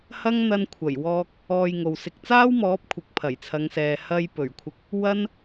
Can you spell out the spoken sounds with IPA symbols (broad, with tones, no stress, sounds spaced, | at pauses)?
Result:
h ɐ˥ ŋ n̪ ɐ˧ n kʷʰ ɐ˨˩ j w ɔː˧ k̚ | ɔː˧ j ŋ o˨ w s ɪ˧ k̚ t͡s aː˥ w m ɔː˨˥ p̚ kʷʰ ɪ˨˥ k̚ pʰ ɐ˨˩ j t͡sʰ ɐ˨˧ ŋ s ɛː˨ h ɐ˧ j p ɵ˨˩ ɥ kʷʰ ɪ˧ k̚ | w ɐ˥ n